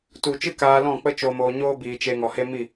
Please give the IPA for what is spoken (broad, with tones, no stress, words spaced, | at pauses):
tu˨t͡ʃɨ˦ kaː˧lɔ̃˦˨ k͡pə˦t͡ʃo˧ moː˧ɲoː˦ biː˨t͡ʃe˧ŋɔ˨he˦ mi˦˨